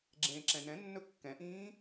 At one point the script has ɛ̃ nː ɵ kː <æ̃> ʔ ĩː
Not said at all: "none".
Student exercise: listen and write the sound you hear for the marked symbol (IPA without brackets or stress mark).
ɛ̃